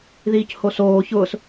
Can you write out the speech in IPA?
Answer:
ðiːchosoː çʊːs

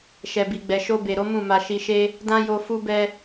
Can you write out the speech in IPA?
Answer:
ʃɛ˨ bi˨ɡ͡bɛ˨ ʃo˧be˨ɾo˨˦ mũ˦˨ma˧ ʃi˧ʃe˦ | dã˦jo˧ fu˦bɛ˦

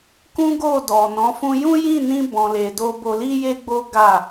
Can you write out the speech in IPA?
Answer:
kũ˦ɡo˦˨dɔ˨nɔ̃˨˦ fũ˧jũ˦jĩ˦˨nĩ˧ bɔ̃˨le˨ do˧bo˧li˦je˦ ɡ͡bo˦ɡa˦˨

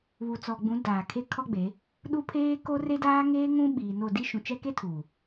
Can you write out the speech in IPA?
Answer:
βu˨t͡sɔ˨ɡ͡bũ˨˦ daː˨kʰe˦kʰɔ˦ɡ͡be˨˦ | ɗu˦pʰeː˦ ko˦re˦daː˦ ŋeː˦ŋũ˦ɓiː˨no˦˨ di˦ʃũ˨ t͡ʃɛ˦ke˦ tʰu˨

